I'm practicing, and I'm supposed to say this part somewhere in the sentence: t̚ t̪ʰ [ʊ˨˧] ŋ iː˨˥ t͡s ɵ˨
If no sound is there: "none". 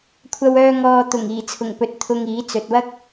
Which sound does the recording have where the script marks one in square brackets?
ʊ˧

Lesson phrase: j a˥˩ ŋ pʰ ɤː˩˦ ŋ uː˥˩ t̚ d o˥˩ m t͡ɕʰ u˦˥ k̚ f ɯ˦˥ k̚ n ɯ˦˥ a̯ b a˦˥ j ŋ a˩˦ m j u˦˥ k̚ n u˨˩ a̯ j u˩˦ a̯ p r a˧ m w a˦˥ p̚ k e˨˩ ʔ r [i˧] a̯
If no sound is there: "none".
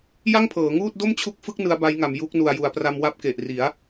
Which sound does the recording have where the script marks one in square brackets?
i˩˦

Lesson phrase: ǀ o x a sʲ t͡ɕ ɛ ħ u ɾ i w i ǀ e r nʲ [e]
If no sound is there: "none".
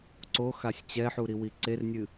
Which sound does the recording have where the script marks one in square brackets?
ɨ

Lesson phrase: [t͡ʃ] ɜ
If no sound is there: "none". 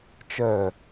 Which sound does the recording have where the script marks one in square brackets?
t͡ʃ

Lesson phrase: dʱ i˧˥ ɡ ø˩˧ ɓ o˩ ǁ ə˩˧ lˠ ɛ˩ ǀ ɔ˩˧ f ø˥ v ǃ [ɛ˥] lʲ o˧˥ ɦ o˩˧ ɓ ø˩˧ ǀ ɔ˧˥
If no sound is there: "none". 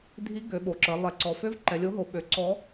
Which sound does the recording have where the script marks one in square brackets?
ɛ˩˧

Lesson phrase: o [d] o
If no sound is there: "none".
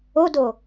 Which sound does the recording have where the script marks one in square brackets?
d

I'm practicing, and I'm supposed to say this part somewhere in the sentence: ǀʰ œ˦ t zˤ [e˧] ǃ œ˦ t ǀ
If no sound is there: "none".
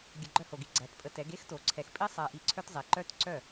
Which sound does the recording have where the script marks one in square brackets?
e˨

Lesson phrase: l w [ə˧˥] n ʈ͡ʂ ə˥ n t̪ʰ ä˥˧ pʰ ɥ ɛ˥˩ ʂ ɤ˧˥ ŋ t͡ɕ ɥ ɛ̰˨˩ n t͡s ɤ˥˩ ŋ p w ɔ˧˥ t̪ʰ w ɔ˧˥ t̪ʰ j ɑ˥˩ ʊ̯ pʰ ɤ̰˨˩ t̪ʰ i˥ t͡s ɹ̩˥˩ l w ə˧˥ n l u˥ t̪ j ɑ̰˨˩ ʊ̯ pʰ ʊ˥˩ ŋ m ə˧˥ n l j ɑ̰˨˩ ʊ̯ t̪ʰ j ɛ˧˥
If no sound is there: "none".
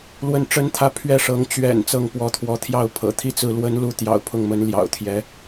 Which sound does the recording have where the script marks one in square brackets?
ə˥˩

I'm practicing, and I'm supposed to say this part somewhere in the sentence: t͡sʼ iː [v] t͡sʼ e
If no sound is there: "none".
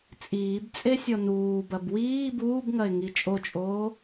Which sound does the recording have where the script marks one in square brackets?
b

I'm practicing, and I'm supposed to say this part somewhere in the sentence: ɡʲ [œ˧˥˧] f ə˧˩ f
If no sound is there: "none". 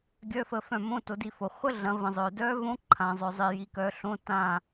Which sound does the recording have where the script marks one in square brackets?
œ˧˥˧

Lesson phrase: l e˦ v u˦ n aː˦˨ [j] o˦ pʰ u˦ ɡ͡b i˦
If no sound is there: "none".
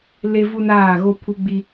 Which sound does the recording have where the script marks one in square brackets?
ɣ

